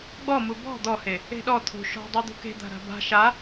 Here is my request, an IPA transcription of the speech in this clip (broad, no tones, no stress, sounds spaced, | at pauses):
ɡ͡b ɔ m u b ɔ̤ d̪ ɔ h e | e̤ ɗ ɔ t̪ʰ ṳ ʃ ɔ̤ dˤ a d̪ ṳ k e̤ d̪ a̤ ɾ a̤ b a̤ ʃ a